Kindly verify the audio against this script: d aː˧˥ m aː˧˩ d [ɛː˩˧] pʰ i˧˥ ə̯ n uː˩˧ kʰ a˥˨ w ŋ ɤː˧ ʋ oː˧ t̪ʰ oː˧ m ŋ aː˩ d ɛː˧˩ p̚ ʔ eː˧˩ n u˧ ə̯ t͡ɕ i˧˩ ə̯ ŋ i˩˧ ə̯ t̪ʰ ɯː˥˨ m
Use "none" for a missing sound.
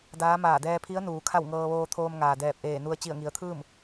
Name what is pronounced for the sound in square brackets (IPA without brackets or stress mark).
ɛː˧